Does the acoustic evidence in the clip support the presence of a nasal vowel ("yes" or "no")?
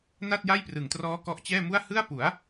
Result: no